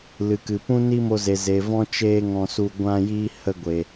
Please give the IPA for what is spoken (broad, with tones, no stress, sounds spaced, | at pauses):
l ɨ˨ k ɨ˨ p ũ˦ n i˦ m o˧ z e˨ z e˨ v ɔ̃˦ t͡ʃ eː˦ ŋ ɔ̃˧ s u˧ ɡʷ ã˧ j iː˧ h ə˧ ɡʷ e˨